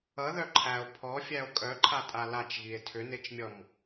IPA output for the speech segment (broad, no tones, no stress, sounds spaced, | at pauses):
ʌ ð œ ǃʰ æ o̯ pʰ ɔ fʲ æ o̯ kʼ œ ǃʰ a tʼ a l a t͡ʃ ɣ i e̯ tʰ ʏ n e t͡ʃ mʲ ɔ m